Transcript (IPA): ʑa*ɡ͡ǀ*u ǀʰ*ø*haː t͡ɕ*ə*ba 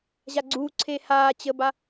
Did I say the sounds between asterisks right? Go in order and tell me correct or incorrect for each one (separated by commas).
correct, incorrect, correct